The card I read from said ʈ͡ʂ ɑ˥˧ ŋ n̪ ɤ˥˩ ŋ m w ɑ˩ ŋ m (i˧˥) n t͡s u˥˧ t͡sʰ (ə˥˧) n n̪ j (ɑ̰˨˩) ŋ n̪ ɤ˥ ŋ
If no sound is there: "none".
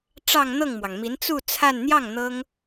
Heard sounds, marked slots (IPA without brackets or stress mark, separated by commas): i˧˥, a˥˧, ɑ˥˩